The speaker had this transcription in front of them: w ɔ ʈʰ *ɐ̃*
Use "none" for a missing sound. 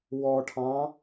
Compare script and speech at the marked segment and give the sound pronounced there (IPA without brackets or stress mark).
ɑ̃